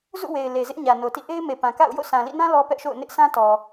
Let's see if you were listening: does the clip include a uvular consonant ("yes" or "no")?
no